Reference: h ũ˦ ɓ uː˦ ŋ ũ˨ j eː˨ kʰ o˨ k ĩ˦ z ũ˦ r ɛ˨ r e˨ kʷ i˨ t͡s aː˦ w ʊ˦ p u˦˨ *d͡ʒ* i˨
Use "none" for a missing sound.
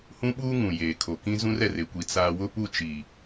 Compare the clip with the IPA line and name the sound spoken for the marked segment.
t͡ʃ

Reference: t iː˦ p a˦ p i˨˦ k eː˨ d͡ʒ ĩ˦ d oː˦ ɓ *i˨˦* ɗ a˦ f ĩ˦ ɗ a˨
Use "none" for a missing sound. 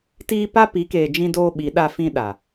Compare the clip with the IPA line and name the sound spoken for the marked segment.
i˨˦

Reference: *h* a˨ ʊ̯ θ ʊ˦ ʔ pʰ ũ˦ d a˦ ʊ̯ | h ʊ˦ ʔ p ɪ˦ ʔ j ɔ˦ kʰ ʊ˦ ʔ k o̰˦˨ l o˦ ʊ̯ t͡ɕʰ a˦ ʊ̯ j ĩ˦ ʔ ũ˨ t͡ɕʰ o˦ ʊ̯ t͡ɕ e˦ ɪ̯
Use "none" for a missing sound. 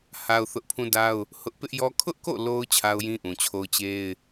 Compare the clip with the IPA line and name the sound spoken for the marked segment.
h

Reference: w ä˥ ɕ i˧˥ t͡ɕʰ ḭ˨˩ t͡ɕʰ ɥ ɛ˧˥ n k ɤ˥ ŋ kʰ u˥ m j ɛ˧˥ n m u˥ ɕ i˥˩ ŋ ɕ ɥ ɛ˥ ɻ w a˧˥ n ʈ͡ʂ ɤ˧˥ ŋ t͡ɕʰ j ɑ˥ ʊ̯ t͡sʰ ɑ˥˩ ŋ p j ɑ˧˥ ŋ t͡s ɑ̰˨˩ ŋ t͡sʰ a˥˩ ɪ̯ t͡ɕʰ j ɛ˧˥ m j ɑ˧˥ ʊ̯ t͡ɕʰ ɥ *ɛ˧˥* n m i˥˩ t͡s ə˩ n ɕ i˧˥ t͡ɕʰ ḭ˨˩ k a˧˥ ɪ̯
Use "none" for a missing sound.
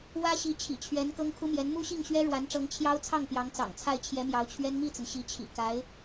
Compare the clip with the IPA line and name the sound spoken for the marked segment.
ɛ˥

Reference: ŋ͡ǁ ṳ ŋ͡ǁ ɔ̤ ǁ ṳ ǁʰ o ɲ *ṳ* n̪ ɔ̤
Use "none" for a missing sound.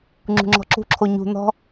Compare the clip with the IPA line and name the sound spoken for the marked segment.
ṳ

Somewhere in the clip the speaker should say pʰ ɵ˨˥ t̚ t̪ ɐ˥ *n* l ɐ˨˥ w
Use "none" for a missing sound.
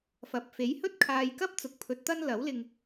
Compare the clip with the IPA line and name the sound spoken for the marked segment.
n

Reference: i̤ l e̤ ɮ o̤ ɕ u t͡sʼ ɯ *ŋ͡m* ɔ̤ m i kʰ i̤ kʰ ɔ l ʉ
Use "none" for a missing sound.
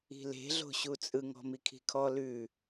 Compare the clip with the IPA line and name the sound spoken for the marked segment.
ŋ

